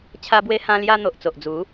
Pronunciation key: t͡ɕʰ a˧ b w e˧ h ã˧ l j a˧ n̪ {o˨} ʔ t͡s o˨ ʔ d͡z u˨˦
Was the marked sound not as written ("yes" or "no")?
no